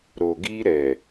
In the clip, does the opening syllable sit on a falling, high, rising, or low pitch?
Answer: low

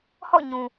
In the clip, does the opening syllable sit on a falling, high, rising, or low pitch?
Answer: falling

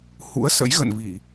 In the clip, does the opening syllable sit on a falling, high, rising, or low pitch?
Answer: rising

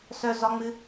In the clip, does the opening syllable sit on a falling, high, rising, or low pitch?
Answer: low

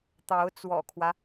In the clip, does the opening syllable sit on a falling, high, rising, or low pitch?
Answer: rising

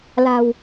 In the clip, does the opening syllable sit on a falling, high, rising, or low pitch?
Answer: low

